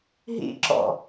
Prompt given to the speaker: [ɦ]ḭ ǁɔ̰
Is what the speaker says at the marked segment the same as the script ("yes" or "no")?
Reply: yes